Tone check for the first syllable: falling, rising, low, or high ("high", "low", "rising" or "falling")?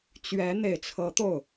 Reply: rising